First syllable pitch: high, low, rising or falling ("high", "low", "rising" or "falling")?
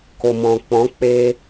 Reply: low